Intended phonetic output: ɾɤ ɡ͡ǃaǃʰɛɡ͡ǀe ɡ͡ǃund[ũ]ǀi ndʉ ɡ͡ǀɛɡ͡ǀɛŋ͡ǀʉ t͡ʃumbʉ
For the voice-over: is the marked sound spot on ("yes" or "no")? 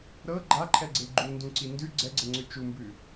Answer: yes